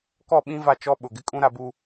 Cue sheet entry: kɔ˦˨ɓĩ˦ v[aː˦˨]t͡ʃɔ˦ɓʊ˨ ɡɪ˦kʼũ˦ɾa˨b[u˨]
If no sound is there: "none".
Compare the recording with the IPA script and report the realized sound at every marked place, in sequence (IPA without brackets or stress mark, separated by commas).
a˦˨, u˨